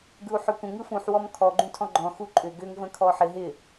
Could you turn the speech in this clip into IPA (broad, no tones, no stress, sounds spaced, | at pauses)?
ɡ ɯ u̯ ħ ʏ kʷ ə̃ ŋ ɯ f ũ ħ w ɔ m kʰ ɔ ɡ͡ǃ ũ tʰ ɔ̃ ɡ͡ǃ ɔ̃ x u ǃʼ ʏ ɡ ʏ ŋ v ə̃ kʰ ɔ ħ ɪ ɦ ɪ